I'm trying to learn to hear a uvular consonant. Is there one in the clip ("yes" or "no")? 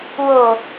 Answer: no